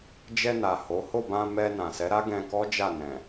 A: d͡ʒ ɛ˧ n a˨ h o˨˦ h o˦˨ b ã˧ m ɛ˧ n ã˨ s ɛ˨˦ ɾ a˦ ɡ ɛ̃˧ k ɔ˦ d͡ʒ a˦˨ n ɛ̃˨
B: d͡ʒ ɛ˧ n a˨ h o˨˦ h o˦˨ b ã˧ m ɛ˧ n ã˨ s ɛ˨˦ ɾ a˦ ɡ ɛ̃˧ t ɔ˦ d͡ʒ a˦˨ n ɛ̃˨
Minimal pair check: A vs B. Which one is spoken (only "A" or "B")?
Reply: A